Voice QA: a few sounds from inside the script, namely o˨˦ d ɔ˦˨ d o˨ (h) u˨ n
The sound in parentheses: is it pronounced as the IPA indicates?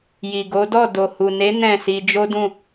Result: yes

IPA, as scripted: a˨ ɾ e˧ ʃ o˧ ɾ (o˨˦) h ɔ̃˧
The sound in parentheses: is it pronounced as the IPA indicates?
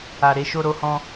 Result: no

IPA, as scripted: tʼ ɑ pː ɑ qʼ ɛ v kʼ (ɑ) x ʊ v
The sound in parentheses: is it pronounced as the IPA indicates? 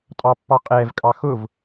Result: yes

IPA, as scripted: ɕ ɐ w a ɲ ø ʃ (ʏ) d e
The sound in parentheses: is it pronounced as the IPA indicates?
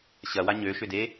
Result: yes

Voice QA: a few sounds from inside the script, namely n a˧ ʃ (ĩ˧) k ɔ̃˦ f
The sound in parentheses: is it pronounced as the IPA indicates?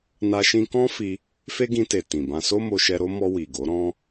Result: yes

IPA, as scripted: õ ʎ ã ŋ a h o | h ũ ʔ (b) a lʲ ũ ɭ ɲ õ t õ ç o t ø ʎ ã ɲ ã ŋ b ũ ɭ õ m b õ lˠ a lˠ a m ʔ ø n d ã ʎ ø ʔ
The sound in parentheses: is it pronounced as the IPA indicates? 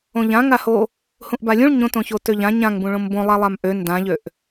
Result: yes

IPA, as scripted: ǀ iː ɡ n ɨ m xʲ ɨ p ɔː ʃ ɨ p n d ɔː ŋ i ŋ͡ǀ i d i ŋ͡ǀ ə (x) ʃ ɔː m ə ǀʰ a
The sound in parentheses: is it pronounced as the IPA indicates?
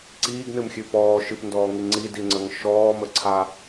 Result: no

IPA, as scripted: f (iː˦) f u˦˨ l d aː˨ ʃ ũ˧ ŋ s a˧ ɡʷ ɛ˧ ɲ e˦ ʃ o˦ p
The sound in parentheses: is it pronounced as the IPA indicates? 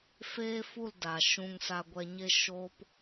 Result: no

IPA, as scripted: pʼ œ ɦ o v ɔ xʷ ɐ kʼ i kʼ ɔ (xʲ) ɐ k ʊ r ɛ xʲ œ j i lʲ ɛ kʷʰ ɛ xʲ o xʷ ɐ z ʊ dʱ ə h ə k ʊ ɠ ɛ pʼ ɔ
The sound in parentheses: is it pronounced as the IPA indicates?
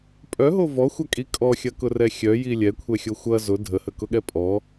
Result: yes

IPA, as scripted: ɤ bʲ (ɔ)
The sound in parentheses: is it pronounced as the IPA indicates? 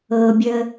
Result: no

